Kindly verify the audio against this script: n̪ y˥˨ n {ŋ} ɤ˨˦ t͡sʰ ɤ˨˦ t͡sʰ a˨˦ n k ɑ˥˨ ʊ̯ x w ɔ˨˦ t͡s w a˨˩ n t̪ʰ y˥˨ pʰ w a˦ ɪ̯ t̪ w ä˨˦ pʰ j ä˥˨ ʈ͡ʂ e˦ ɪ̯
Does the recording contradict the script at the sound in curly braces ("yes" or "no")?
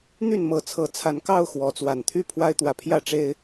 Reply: yes